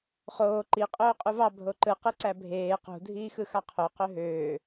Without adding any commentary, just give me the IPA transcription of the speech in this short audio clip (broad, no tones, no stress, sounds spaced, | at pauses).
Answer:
χ oː ǃ i qʼ oː qʼ u v ɑ bʱ o ǃ ɯ q ɯ ǀ æ bʱ eː q ṳ dʱ iː x ɯ x ɑ qʰ o q ø ɦ øː